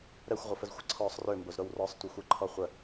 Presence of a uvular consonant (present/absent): present